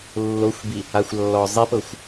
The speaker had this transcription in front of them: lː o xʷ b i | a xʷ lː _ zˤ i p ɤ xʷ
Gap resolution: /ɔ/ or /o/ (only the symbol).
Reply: ɔ